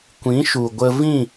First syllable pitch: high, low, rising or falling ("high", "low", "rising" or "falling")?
rising